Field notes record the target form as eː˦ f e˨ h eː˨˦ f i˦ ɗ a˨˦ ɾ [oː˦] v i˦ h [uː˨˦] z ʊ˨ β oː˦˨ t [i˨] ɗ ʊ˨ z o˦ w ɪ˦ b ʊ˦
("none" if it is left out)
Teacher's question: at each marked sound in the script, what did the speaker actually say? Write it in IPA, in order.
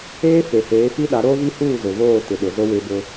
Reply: oː˦, uː˦˨, ɪ˨

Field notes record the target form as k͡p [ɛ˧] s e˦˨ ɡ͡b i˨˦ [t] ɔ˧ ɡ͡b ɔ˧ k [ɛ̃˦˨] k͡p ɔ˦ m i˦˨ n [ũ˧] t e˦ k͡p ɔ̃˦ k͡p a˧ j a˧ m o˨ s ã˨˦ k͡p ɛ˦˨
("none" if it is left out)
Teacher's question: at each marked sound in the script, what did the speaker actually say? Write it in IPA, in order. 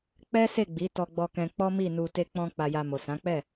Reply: ɛ˦, t, ɛ̃˧, u˧

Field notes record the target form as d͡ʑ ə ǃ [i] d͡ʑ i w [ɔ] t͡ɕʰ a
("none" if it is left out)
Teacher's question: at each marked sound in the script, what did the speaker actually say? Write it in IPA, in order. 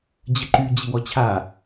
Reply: y, ɔ

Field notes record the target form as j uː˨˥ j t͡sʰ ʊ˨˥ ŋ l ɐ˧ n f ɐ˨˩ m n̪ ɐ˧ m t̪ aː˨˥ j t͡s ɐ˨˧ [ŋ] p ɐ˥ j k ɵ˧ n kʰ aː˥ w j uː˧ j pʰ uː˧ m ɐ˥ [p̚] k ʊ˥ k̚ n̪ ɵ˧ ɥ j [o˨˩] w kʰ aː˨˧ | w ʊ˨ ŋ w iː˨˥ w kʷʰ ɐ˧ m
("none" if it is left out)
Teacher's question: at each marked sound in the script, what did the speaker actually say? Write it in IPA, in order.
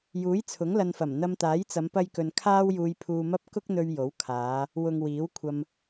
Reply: m, p̚, o˨˥

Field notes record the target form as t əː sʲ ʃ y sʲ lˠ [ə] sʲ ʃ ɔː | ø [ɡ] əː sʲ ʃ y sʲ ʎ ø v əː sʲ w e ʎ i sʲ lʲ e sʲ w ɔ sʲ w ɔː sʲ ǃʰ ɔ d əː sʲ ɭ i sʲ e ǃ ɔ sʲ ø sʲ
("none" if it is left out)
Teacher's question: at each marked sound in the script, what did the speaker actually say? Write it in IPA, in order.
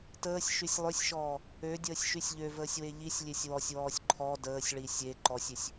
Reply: ø, dʲ

